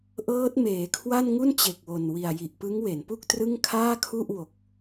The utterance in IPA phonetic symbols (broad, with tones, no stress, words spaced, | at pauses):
ʔɤː˦˥t̚meː˩˦kʰwa˥˩nŋu˥˩n t͡ɕe˨˩k̚wo˨˩n wi˨˩a̯ji˨˩ʔ pɯ˦˥ŋwe˩˦npu˥˩k̚trɯ˥˩ŋ kʰaː˥˩kʰu˥˩ʔ wo˨˩k̚